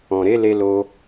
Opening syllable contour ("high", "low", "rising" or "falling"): low